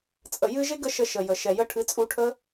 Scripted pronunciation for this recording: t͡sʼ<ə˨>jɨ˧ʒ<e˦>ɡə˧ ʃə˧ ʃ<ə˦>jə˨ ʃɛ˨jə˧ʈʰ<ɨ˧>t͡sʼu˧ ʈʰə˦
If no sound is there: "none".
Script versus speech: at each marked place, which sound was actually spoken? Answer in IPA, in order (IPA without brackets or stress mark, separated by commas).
ə˨, e˦, ə˨, ɨ˨˦